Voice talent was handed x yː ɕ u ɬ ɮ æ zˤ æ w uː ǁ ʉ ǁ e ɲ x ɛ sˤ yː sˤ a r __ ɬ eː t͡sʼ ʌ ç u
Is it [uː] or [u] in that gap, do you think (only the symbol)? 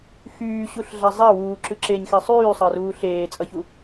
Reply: uː